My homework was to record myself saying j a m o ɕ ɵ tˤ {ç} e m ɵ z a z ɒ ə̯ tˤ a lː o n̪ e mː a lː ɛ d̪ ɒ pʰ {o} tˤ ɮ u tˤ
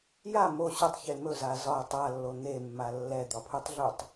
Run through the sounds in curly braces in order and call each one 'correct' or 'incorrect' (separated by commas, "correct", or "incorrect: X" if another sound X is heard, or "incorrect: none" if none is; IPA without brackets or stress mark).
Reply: correct, incorrect: u